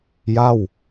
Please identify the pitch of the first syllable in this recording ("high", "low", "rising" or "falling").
falling